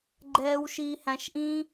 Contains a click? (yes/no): yes